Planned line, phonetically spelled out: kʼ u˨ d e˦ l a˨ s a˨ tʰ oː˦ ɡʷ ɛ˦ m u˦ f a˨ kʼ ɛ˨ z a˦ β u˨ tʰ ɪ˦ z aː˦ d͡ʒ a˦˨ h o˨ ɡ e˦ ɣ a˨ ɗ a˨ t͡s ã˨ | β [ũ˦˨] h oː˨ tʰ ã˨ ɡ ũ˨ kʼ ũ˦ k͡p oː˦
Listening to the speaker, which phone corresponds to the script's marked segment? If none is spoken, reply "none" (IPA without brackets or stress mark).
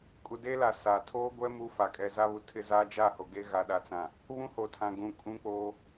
ũ˦